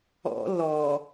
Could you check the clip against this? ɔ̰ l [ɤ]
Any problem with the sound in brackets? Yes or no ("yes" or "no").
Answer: yes